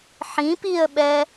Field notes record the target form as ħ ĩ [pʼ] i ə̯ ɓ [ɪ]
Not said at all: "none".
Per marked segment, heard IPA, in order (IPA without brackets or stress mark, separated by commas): p, ɛ